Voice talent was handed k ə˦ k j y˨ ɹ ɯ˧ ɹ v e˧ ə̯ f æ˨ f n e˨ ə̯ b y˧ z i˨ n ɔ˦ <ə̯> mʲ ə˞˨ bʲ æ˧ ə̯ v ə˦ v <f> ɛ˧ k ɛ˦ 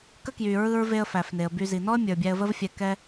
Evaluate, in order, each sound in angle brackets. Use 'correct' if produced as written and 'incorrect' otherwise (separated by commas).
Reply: correct, incorrect